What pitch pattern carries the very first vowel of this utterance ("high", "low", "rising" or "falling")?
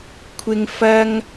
high